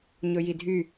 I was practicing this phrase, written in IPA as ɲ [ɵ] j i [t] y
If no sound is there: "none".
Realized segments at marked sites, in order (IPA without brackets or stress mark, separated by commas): ɵ, dʱ